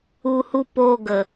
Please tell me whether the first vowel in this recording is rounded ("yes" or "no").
yes